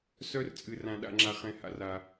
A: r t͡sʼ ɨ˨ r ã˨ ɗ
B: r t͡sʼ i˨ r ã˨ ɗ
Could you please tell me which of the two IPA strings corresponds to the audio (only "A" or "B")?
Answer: A